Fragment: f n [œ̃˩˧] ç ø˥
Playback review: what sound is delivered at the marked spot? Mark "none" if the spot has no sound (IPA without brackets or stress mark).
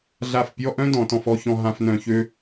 œ̃˧˩